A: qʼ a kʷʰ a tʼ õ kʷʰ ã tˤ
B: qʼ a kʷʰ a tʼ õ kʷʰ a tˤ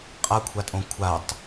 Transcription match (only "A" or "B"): B